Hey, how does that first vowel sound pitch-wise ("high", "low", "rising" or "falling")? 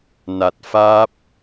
low